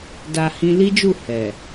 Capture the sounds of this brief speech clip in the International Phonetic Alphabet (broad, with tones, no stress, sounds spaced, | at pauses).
d a˨ h ĩ˧ l i˦ d͡ʒ u˦˨ h ɛ˨